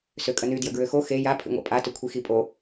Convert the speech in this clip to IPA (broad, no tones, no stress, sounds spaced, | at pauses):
s ø kʼ ə n y d j ə ɡ ɹ ø x o x e j a pʰ ḭ ŋʷ a̰ pʼ a t ʏ kʷʰ i x i pʼ o